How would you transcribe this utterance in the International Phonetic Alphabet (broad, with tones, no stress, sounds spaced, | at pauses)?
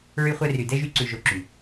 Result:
ɹ y˧ χʷ ɛ˧ r y˨ d ɛ˦ ʒ y˧ ǀ ʉ˨ ʒ o˨ ǁ y˨